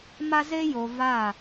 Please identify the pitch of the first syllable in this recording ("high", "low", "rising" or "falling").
high